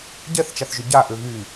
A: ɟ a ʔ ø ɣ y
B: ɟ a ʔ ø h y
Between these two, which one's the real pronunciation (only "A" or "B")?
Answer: A